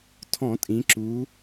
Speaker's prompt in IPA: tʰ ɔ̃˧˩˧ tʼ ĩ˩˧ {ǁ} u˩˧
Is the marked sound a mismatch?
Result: no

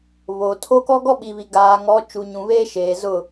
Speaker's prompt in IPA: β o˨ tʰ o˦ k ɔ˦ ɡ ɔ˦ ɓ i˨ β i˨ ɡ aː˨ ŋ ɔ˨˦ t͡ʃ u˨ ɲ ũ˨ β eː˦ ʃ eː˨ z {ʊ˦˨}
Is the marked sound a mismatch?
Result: no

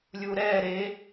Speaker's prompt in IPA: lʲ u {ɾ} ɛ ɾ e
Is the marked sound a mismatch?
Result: no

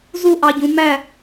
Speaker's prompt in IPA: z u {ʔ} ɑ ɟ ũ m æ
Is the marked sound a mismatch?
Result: no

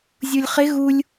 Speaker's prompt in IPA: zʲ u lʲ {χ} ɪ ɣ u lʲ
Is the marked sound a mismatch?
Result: no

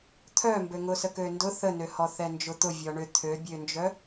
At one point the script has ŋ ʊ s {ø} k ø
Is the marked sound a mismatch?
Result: yes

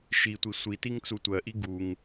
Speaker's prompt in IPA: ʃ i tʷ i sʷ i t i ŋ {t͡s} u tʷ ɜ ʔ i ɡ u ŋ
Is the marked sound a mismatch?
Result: no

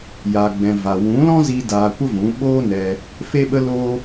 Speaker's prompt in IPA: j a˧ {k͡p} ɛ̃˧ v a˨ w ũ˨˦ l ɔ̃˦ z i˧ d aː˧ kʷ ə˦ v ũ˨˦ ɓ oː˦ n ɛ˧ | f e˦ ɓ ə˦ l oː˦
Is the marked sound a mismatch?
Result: yes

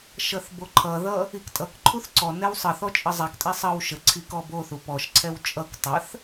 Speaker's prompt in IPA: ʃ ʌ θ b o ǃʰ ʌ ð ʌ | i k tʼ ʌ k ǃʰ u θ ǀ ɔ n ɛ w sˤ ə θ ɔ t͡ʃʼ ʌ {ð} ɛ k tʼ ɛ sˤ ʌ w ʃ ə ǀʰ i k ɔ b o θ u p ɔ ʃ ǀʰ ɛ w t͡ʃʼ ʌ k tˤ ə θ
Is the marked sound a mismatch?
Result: yes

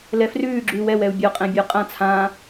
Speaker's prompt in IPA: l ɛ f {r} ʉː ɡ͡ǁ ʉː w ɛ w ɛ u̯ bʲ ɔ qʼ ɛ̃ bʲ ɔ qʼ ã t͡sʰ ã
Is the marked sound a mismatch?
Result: no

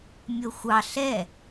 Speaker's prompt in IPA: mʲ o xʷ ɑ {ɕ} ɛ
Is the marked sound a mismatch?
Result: yes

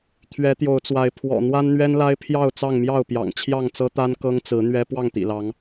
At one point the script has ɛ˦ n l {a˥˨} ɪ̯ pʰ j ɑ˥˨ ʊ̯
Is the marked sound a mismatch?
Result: yes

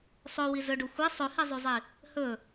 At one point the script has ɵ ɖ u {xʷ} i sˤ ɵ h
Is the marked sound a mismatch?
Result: no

